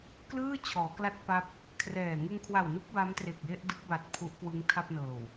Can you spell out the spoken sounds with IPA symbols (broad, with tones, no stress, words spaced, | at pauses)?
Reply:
klɯː˥˩ t͡ɕʰɔː˩˦kla˥˩t̚pa˦˥p̚ | kʰrɛː˨˩ ŋɯ˧ŋkʰwa˨˩wnu˦˥k̚ ba˦˥mtre˨˩k̚je˥˩ʔdɯ˦˥k̚ ba˨˩t̚ pʰu˦˥ʔkwɯ˦˥ŋtʰa˥˩p̚nɤː˨˩w